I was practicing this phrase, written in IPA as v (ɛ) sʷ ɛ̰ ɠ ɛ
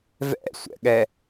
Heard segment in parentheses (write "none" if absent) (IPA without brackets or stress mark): ɛ̰